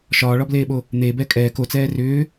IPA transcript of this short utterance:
ʃ ɒː ɭ ɒ b l eː ɓ o | n̪ e b ɛ kʼ ɛː k o t͡s ɛː r ʏː

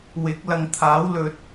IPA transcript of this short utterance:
w ɪ˨˥ k̚ l ɐ˨ ŋ t̪ʰ aː˨˥ w l ɵ˨˥ t̚

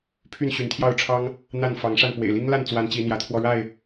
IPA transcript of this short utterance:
pʰ y˥˨ n ɕ y˨˦ n t̪ʰ j ɑ˥˨ ʊ̯ ʈ͡ʂʰ ɑ˦ ŋ | n̪ a˥˨ n f ɑ˨˦ ŋ ʂ a˥˨ n p w ḛ˨˩ ɪ̯ l i˦ ŋ l a˥˨ n t͡s w a˨˦ n t͡ɕ i˨˦ n̪ j ä˨˦ t̪ʰ w ɔ˧ ɻ a˥˨ ɪ̯

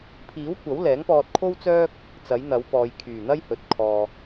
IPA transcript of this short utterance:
pʰ iː˨˥ w kʷ ɐ˨˥ w l ɛː˨˥ ŋ p ɔː˧ t̚ kʰ o˥ w t͡s œː˥ k̚ | t͡s ɐ˨˥ j n̪ ɐ˨˥ w p ɔː˨ j kʰ yː˨˩ n̪ ɐ˥ j h ɵ˨ t̚ kʰ ɔː˨

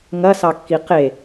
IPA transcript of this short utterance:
ŋ ɐ s ɑ kː i q e

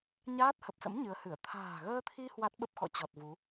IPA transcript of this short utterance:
ɲ aː˦˥ t̚ h ə˨˩ p̚ s ə̰˧˥ m ɲ ɨ˨˦ ə̯ h ɨ˧˩ ə̯ t̪ʰ a̤ː˨˩ ɣ əː˧ t̪ʰ i˧ h w a˦˥ t̚ ɓ ə˦˥ p̚ x ɔ̰˧˨ t͡ɕ ɔ˨˩ t̚ v u˨˦

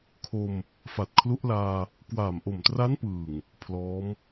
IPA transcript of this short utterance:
kʰ o˧ m | f a˨˩ t̚ kʰ l u˦˥ ʔ l aː˧ | k w aː˨˩ m ʔ o˨˩ m t r a˦˥ n p ɯː˨˩ ŋ | pʰ l ɔː˦˥ m

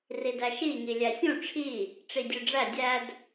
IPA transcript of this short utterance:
r i d æ ʃ i ŋ i lʲ æ sʲ ũ ʈ͡ʂʰ i | ʈ͡ʂ i dʲ ø ɖ͡ʐ æ dʲ æ d

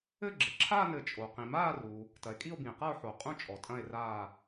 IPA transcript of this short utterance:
ɘ˥˧ ɡ͡ǁ ɘ˨ ǁʰ aː˥˧ n ɘ˨ t͡ʃʼ o˨ q ĩ˨ m aː˥˧ r u˨ | t ɐ˨ e̯ kʼ i˥˧ o̯ b ĩ˨ e̯ q a˥˧ o̯ ħ o˨ qʼ ũ˥˧ t͡ʃʼ ɔ˨ tʼ ɐ̃˥˧ e̯ r aː˥˧

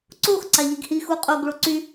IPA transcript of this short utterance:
ǀ o x ǀ a ʎ i ɡ h i x u qʼ o ɡ ɭ o ǀ y

